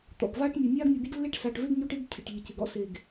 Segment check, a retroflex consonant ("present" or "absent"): present